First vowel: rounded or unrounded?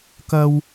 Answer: unrounded